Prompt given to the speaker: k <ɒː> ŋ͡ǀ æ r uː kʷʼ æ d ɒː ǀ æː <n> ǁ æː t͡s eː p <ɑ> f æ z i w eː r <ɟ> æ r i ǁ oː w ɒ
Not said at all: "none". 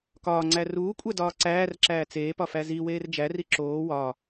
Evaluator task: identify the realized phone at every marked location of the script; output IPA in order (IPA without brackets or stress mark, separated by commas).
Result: ɒː, r, ɒ, d͡ʒ